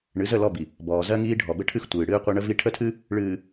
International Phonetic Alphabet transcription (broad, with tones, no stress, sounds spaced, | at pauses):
ɳ ɨ˨˦ z ə˦˨ l ɔ˦˨ b i˨ | b ɔː˨ z ɜ˦ ŋ iː˦ ɖʱ ɔ˨ b ɘ˦ ʈʰ ɨ˦ x tʷ ɨː˨ ɽ ɨː˦ qʷ ɘ˦ ɳ ə˦ v i˦ ʈʰ ə˦˨ tʰ ɨ˦ | ɭ ɨː˨